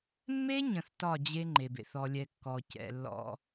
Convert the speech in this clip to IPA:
mː e˦ ɲ ə̃˦ θ t ɒ˦˨ d͡ʑ e˦ ŋ͡ǃ e˨ b ḛ˦ θ ɔ˦ lʲ ɛ˦ kː ɔ˨ c ɛ̰˨ lː ɔ̰˦

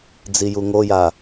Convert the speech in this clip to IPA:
d͡z i j u ŋ o j a

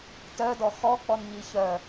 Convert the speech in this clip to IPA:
t œ d ɔ x ɔ k͡p ɔ n ɲ i ç œ

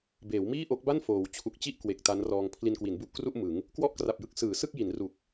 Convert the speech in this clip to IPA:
b eː˩˦ w m iː˥˩ ʔ o˦˥ k̚ b a˥˩ n f oː˩˦ w t͡ɕʰ u˨˩ k̚ t͡ɕ i˥˩ ʔ k w e˨˩ k̚ t a˦˥ n r ɔː˧ ŋ pʰ l i˧ n k w i˩˦ n b u˦˥ ʔ k r u˥˩ ʔ m ɯ˩˦ ŋ | k w ɔ˥˩ ʔ k r a˨˩ p̚ j ɯ˦˥ k̚ s ɯː˩˦ s ɯ˥˩ k̚ j i˩˦ n r u˨˩ k̚

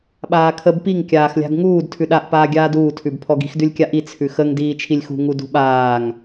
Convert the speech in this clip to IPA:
ɓ aː kʰ ə b p i ŋ kʲ aː x lʲ a̤ ɡ ŋ uː d tʰ ʉ ɗ a ʔ p aː ɡʲ aː d uː tʰ ʉ b pʰ ɔ ɡ i̤ x d ʉ lʲ kʲ a ʔ i t͡sʰ ʉ x ə ŋ d iː t͡ʃʰ i lʲ x ṳ ŋ u d ṳ ɓ aː ŋ

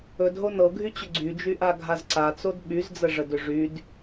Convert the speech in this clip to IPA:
ɵ d ɦ o n ɤ ɡʱ y t͡ɕ ʏ ɡ͡ǀ y d͡ʒ y ʔ a ɡʱ a z ǀ a t͡s o d ɓ y z d͡z ə ʐ ə d ʏ ʐ y d

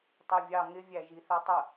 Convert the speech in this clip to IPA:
tˤ i vʲ ɑ ŋ ɪ vʲ æ ʒ i θ ɛ tˤ ə

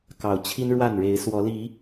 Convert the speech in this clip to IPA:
k ɑ˨˩ ʊ̯ t͡ɕʰ i˦ n ɻ w a˥˨ n ɻ e˨˦ ɪ̯ s w ɔ˨˦ l i˨˦

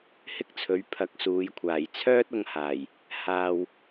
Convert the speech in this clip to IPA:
h ɪ˥ k̚ t͡sʰ ɵ˨˥ ɥ pʰ ɐ˨˥ k̚ s uː˨˧ j kʷʰ aː˨˩ j t͡sʰ œː˥ t̚ ʊ˧ ŋ h aː˨˩ j | h aː˧ w

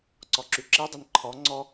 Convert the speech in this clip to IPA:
ǀ ɔ ǁ y ǁ i dˤ e n ǃʰ ɔ ŋ͡ǀ ɔ

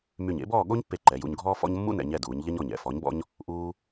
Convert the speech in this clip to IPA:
m y˧˩ ɲ ḛ˥ b ɔː˥˧ ɠ o˥ ɲ pː e˧˩ ǃ ɛ˩˧ j ṵ˧ ɲ ɡʱ ɔː˥ f ɔ̰˥ ɲ mː ṵ˥ n ɛ̰˩˧ ɲ ɛ˧˩ d uː˩˧ ɲ ʎ ɛ˥ ɲ ɔ˧˩ ɲ ɛ̰˩˧ f ɔ˩˧ ɲ b ɔ̰˧ ɲ | ʔ uː˧

